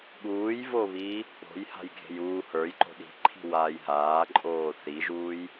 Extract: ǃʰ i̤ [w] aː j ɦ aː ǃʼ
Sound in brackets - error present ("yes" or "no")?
no